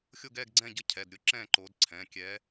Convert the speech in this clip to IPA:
xʲ o˦˨ ɡ ɛː˦˨ ɡ ɡ͡ǀ ɛ̃ː˦˨ ɟ ə˦˨ cʰ ɛ˩˧˩ d ɾʲ ʊ˦˨ ǁ ɛ̃ː˦˨ ǃ oː˨˦ d ǀʰ ɛ̃ː˩˧˩ kʲ ɛː˨˦

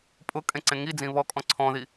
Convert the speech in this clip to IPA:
pʼ ʊ kʼ ẽ ǀ ẽ ŋ i d͡z ĩ β ɔ kʼ ɔ̃ ǀʰ ɔ̃ ð i

